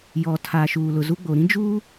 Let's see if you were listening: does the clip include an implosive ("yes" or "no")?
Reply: no